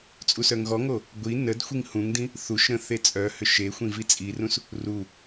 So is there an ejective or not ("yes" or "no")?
yes